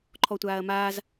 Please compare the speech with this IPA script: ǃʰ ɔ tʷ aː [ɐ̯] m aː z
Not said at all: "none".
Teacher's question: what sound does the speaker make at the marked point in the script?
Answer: ɐ̯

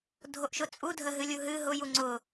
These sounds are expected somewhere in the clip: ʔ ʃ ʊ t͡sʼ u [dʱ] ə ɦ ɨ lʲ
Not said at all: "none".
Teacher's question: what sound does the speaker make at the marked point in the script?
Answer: dʱ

